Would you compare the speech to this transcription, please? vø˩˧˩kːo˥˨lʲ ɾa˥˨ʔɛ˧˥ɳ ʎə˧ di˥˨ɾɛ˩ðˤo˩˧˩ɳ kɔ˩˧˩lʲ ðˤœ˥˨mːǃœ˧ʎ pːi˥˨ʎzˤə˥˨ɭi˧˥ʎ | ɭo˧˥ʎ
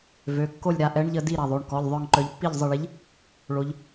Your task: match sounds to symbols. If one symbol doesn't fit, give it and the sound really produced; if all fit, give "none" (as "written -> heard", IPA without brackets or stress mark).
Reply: mː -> ŋ